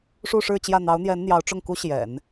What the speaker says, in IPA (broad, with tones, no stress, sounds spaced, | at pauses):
ʂ u˥˧ ʂ ɻ̩˥˧ t͡ɕ j ä˥˩ n̪ ɑ˧˥ ʊ̯ n̪ j ɛ˧˥ n n̪ j ɑ˧˥ ʊ̯ ʈ͡ʂ ʊ˥˩ ŋ k u˥ ɕ j ɛ̰˨˩˦ n